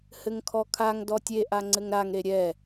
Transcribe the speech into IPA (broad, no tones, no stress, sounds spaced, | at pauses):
h ɘ ŋ kʰ ɔ kʰ a ŋ d ɔ tʲ e ʔ a ŋ͡ǀ ɘ ŋ ɾ a ŋ ɾ e ɾʲ ɛ